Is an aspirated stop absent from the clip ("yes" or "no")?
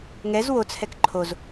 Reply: no